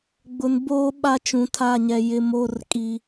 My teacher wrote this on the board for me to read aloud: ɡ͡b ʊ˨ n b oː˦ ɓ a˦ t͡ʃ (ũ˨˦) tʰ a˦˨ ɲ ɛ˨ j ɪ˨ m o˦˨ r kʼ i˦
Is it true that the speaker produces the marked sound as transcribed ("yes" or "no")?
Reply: no